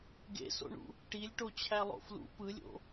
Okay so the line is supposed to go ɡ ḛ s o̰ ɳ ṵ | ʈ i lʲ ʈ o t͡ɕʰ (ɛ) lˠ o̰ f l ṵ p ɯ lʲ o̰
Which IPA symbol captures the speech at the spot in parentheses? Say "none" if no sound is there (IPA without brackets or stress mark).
æ